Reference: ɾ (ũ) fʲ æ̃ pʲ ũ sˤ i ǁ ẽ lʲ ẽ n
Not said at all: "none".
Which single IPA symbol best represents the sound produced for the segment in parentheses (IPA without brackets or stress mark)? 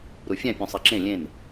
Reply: u